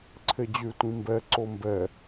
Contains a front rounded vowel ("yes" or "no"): yes